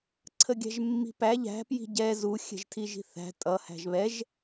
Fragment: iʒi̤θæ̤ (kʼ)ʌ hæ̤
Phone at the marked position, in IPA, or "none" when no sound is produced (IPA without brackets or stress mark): tʼ